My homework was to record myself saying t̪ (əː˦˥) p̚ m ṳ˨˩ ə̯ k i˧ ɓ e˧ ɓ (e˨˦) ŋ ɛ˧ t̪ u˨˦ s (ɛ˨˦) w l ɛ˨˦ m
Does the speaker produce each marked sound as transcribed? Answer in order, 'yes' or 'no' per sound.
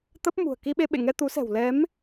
no, no, no

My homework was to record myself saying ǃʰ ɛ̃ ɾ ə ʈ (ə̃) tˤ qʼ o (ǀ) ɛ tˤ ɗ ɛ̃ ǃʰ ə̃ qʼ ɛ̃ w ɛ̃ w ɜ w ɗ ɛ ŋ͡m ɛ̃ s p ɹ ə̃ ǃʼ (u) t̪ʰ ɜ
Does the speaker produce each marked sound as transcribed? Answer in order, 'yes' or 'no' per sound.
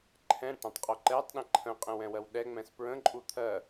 no, no, yes

